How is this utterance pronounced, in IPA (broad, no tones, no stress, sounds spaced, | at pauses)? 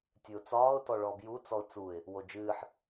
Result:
tʲ ɨ ʊ̯ t͡s ɒː ʊ̯ t ɔ ɭ ɔ b j u t͡s ɔ ʊ̯ t͡s u ɪ̯ | w o d͡ʒ ɨː ħ